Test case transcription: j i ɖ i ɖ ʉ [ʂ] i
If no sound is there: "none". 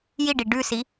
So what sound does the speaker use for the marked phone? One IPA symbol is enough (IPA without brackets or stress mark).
s